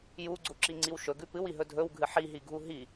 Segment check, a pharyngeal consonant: present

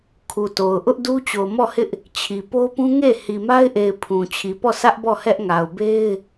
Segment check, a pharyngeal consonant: absent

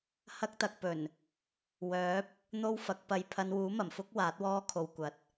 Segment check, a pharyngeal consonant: absent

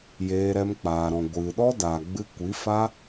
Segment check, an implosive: present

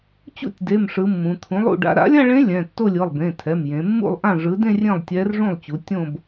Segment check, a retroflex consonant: present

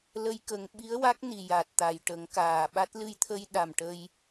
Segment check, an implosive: present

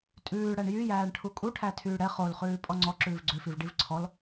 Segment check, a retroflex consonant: present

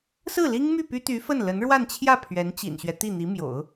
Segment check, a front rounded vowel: present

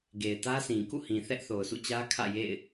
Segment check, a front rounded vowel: absent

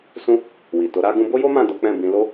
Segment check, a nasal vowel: present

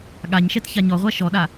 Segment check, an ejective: absent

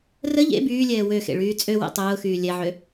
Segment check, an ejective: present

